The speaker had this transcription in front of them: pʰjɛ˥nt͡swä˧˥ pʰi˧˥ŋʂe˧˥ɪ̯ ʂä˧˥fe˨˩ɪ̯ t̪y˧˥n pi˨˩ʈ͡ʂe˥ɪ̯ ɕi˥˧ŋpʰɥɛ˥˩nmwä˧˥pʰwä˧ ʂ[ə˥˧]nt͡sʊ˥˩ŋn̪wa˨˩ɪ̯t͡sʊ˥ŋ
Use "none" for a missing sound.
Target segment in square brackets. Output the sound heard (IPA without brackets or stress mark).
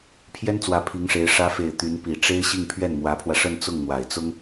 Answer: ə˥˧